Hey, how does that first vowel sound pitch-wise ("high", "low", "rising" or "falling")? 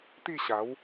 falling